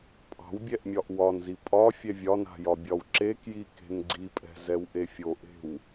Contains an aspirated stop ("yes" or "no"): no